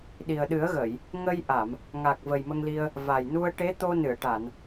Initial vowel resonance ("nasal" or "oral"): oral